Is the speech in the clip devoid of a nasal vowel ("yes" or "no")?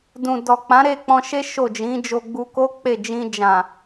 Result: no